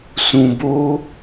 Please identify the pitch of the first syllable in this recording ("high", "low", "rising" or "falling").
low